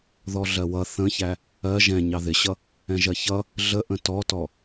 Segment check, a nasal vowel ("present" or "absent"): present